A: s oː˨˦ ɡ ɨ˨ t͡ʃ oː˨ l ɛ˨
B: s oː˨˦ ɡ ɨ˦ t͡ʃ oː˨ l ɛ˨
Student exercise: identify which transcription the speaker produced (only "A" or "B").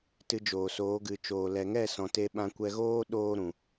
A